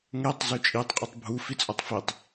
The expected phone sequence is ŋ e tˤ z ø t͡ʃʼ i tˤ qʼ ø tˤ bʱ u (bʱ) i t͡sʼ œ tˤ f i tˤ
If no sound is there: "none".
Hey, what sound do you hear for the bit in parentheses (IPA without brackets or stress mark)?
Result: f